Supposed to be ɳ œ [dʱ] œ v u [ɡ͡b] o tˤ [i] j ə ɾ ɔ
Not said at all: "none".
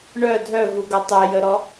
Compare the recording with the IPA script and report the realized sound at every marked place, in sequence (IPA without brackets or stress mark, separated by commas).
dʱ, ɡ, e